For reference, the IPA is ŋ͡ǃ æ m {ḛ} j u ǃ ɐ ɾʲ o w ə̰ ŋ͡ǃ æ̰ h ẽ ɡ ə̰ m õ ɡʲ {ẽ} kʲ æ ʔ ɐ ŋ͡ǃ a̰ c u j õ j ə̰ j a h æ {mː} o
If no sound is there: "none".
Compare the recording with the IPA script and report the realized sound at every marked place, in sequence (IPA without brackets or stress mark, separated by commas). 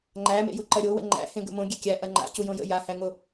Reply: ḛ, e, ŋ